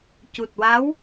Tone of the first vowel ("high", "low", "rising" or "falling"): low